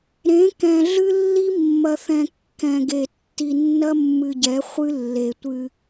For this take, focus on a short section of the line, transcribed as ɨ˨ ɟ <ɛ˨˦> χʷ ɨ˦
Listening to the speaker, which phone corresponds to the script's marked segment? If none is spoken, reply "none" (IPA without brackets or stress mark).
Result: ɛ˨˦